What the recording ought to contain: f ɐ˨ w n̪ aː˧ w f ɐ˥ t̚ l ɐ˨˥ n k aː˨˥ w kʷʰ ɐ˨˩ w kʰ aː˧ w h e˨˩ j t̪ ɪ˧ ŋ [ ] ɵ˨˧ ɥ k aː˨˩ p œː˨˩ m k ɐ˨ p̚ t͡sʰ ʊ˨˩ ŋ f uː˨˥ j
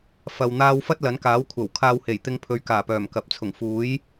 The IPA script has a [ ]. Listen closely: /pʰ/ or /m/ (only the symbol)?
pʰ